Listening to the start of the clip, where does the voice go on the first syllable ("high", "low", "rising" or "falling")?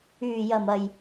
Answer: low